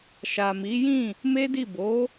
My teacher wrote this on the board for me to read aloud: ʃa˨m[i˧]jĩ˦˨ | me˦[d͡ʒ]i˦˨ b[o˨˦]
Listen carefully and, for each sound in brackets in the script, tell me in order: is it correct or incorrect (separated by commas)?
incorrect, incorrect, correct